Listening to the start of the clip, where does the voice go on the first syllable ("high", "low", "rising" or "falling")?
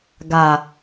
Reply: low